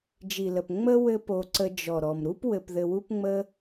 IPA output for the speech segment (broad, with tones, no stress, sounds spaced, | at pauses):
d͡ʒ i˨ l ə˨ p ŋ͡m ə˦ w ɘ˦ p o˧ ǀ ə˧ d͡ʒ ɔ˨ ɾ ɔ˨ m ɾ u˦ p w ɘ˧ p ð ɘ˧ w u˦ p ŋ͡m ə˦